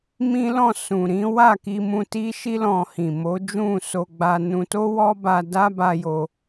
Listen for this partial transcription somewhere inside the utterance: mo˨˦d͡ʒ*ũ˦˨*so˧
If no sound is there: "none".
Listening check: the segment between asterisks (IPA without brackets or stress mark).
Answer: ũ˦˨